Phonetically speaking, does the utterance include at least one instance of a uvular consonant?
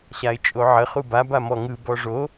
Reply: yes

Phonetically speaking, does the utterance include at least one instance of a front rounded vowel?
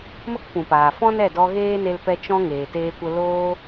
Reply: no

